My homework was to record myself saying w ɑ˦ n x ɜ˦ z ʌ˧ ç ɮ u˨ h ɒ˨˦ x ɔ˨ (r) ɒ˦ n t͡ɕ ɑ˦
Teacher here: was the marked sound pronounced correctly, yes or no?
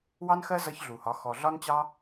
no